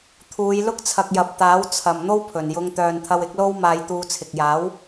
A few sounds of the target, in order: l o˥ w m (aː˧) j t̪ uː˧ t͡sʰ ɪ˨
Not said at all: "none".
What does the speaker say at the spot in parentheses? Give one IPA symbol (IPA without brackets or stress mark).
aː˧